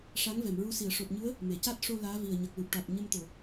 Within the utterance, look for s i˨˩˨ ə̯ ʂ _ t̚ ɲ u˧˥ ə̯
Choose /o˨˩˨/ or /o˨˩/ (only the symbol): o˨˩